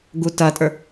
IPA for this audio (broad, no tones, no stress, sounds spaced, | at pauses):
ɡ u t ɐ tʼ ə˞